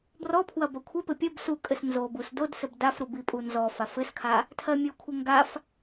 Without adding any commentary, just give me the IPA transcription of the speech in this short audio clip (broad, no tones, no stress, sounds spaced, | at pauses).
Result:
b r ɔ pʰ w ɐ b ɐ kʷʰ ɛ p ɘ pʲ ɐ b s u kʼ ɘ s n z o b u s d o d s ɘ b d a f ɾ u b i pʼ u n z ɔ f a f ɘ s kʰ a | tʰ ɜ mʲ u kʷʰ ɘ ŋ ɡ a f